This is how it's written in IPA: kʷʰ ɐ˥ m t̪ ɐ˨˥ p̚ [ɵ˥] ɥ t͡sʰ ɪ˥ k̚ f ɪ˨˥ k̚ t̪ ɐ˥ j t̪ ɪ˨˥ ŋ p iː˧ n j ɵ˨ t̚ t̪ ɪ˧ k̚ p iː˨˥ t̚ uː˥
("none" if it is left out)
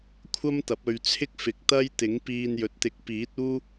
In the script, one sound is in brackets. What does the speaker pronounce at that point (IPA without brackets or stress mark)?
ɵ˧